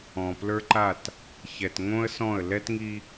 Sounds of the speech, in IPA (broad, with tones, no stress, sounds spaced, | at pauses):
ɔ̃˨ p l ə˞˦ ǃ a˦˨ t | ç ɛ˨ t ŋ õ˦ ə̯ s ɔ̃˦˨ ə̯ l ɛ˦ t ŋ i˦